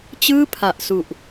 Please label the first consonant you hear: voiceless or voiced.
voiceless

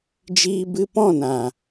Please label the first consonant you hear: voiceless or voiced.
voiced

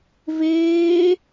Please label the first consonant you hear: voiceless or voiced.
voiced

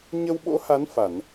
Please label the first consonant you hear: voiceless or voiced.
voiced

